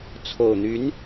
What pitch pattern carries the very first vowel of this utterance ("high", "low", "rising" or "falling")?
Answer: low